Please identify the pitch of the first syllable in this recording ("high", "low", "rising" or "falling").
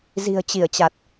low